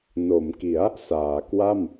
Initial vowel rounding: rounded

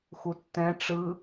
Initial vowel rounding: rounded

